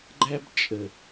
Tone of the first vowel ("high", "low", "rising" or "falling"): high